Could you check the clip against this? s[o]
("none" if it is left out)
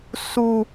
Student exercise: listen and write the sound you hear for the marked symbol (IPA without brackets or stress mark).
u